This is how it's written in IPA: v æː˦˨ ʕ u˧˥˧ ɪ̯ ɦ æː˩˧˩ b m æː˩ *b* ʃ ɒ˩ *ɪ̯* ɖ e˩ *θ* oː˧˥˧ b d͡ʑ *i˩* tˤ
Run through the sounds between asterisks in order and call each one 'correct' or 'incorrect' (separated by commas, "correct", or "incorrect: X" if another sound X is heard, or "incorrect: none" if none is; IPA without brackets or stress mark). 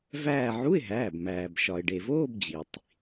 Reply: correct, correct, incorrect: v, correct